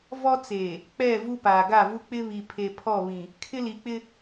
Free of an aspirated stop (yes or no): no